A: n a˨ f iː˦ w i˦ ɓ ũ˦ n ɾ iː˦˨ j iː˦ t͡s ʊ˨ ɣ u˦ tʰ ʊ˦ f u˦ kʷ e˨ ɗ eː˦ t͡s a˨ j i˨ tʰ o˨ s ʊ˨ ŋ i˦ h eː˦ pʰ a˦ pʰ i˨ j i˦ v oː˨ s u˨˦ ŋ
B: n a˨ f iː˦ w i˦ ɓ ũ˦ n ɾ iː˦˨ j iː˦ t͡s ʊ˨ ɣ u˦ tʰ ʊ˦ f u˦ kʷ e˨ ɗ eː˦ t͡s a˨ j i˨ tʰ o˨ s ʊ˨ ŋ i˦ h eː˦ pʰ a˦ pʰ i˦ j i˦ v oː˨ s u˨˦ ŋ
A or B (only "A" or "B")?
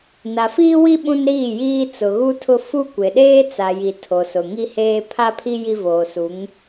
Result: B